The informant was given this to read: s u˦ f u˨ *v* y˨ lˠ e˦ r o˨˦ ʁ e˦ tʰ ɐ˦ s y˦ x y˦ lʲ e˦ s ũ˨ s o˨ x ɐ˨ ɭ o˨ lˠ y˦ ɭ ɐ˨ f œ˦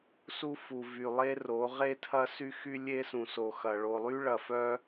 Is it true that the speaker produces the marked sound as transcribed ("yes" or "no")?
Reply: yes